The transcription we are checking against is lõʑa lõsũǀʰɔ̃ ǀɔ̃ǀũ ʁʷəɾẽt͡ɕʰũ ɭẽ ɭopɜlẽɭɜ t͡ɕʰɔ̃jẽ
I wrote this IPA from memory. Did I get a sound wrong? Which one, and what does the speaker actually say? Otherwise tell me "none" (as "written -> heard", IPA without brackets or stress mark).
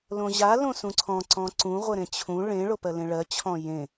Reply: none